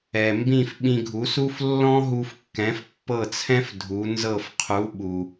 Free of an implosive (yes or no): no